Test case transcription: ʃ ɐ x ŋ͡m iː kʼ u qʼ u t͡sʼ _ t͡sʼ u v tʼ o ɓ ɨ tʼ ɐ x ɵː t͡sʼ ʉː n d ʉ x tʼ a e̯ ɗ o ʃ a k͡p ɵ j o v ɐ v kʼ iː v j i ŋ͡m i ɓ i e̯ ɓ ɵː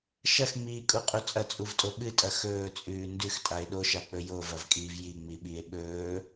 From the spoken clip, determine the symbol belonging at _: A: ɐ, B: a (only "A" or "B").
A